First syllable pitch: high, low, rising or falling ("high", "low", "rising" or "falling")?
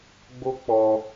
high